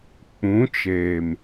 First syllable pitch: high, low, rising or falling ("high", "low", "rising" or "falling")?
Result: rising